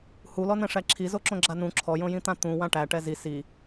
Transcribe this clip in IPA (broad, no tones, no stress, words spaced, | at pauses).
hulɔnɛ̃ʂæ ǁʰizoǁõ ɡ͡ǁanũ ǁʰɔjõjĩt̪ã t̪ũ wãʈæ ʈɛzi si